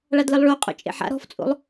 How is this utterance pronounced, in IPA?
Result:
ɭ a d l ə lˠ ɭ o qʼ o̰ t͡ʃʼ ḛ ħ a̰ ɾ ɔ̤ f t͡sʼ o̰ lˠ

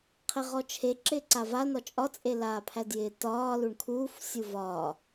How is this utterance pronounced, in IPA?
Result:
qʰ e ʁ ɔ t͡ʃʰ e ǁ ɪː ǀ a v a n ɒ t͡ʃʼ ɒ t͡sʼ e l aː pʰ æ d j ɪː t ɒː l u ɳ kʰ uː f sʲ u v ɒː

